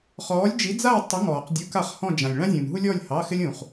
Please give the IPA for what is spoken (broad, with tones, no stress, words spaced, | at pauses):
χɔː˧˥lʲd͡ʒi˧˥d͡za˥˧w tˤə˧˥ŋɔː˨qdʲu˧˥ ka˥˩χhɔ̃˥˧ d͡ʒã˨lʲ ɭã˥zʲũː˨nɦu˥lʲɔː˥˧lʲ hɑ˧˥˧xɪ˥lʲ ũː˨χ